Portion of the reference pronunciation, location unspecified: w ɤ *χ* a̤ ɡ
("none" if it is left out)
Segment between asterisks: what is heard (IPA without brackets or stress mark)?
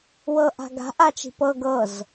ʔ